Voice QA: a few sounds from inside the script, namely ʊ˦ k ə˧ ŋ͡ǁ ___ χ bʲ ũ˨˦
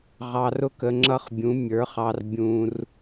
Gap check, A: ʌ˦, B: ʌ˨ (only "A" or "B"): A